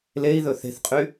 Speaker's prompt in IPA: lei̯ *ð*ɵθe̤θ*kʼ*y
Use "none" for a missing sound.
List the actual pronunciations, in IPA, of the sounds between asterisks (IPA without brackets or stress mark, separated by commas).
ð, qʼ